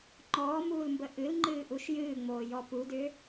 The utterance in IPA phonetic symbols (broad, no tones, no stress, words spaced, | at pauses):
ŋ͡ǃɔːmuːlmbə ʔɨlŋ͡ǃɨːʔuʃ jɨːŋ͡moːjɔ pudʏː